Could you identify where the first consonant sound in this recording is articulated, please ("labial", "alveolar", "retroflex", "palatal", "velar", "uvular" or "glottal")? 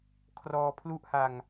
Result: velar